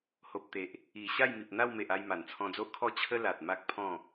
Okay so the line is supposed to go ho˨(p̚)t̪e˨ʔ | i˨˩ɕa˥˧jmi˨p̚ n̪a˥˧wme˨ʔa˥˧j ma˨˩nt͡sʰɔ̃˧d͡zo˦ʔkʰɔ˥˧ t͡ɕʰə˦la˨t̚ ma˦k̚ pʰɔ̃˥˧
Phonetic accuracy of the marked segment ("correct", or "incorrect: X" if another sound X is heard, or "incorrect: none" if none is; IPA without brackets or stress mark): correct